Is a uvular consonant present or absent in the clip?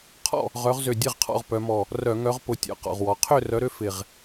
present